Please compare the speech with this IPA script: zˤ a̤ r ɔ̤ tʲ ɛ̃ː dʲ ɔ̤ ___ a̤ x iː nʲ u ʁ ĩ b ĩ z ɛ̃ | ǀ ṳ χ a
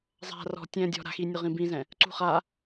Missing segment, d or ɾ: ɾ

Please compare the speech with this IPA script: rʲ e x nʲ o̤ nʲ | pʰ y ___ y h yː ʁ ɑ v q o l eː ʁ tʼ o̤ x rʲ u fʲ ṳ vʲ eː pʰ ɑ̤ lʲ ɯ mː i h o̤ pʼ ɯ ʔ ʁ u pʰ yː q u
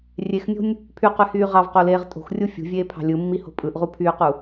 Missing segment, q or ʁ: q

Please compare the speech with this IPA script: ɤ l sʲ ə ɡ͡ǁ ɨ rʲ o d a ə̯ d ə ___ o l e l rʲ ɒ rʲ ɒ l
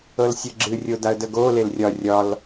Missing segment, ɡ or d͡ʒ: ɡ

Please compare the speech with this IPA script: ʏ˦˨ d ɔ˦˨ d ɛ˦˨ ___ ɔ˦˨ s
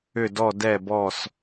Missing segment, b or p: b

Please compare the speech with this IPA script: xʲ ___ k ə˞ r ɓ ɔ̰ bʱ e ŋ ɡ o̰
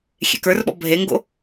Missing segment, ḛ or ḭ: ḛ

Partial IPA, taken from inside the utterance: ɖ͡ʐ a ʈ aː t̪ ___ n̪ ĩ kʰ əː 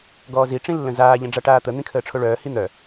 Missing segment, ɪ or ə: ə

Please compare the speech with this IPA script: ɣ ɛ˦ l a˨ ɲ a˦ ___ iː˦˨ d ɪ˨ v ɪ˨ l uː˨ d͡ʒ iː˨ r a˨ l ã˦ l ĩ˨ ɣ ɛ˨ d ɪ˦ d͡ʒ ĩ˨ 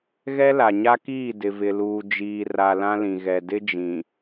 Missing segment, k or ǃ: k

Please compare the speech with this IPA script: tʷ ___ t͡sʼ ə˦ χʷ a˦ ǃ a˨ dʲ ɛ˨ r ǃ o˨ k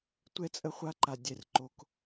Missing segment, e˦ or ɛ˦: ɛ˦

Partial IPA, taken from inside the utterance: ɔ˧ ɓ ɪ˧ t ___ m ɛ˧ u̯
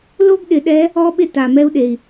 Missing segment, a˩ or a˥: a˩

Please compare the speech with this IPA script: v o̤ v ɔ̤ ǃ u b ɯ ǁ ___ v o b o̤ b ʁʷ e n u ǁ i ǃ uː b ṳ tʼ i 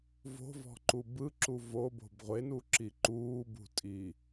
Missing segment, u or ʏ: u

